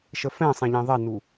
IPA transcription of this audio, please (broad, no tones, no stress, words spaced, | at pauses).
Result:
ʃəfɛ̃sˤɛ̃ʎẽ ðˤɛnu